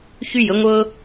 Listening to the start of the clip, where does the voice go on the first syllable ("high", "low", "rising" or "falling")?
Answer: high